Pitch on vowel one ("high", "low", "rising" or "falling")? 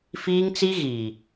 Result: high